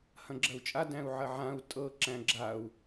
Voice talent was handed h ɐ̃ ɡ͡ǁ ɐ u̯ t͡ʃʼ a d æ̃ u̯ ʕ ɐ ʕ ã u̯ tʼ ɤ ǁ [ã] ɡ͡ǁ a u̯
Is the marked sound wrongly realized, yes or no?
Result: yes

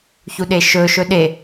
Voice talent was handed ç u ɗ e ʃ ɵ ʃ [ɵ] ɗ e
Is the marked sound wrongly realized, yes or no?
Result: no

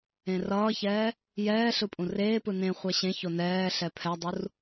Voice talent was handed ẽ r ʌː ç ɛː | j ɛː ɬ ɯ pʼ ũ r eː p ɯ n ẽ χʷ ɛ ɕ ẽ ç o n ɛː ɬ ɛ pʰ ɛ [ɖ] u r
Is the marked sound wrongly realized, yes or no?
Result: yes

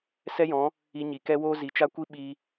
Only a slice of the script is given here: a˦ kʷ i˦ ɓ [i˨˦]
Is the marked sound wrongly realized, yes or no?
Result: yes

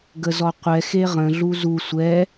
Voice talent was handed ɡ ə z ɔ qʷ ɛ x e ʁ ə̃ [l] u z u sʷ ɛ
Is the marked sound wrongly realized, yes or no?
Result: yes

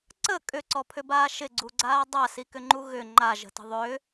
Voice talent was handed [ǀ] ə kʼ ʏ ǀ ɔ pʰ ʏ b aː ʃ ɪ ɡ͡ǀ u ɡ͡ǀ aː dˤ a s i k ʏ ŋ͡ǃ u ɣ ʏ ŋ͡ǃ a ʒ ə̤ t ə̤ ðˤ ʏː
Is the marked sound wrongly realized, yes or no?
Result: no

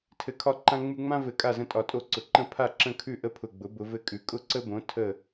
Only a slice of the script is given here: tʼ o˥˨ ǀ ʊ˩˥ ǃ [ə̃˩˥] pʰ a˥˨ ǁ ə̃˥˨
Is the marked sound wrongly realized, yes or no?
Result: yes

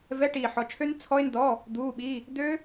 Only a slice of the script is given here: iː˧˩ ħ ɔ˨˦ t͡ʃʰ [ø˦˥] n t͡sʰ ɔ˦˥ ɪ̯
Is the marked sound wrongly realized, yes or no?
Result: no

